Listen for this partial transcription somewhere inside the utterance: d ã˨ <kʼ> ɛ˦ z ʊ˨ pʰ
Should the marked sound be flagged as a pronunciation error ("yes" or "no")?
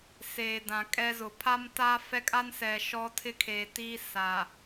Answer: no